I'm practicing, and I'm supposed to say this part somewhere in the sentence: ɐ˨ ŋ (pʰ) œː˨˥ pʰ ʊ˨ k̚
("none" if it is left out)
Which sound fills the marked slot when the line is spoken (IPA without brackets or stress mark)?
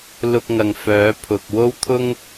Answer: f